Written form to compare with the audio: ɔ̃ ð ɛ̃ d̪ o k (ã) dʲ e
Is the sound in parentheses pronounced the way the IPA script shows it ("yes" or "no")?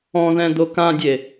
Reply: yes